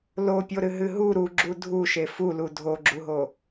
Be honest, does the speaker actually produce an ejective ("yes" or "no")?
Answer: no